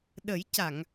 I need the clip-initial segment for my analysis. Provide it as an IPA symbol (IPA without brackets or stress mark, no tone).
ɗ